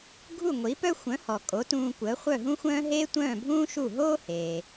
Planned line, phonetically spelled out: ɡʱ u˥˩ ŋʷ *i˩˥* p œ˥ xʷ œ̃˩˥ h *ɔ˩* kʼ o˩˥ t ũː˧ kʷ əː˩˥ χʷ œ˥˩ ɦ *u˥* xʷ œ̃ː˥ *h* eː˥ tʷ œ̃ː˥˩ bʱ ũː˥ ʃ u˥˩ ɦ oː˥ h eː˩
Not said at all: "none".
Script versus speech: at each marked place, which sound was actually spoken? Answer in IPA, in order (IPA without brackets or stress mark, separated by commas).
i˩˥, ɔ˩, ũ˥, ɦ